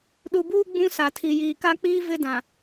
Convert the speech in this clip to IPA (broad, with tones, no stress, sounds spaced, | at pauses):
ɗ u˨ b uː˦ ɡ͡b ũ˦ s a˨ tʰ i˨ j iː˨ k a˦ k͡p iː˦ v ɪ˦ d ã˨